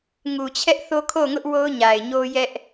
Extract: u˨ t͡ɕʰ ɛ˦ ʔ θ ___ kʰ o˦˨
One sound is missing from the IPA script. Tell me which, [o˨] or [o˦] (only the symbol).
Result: o˦